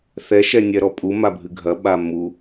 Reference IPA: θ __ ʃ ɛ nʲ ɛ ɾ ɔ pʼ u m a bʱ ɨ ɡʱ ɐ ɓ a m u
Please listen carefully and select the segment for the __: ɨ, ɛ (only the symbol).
ɛ